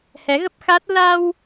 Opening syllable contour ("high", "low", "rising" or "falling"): rising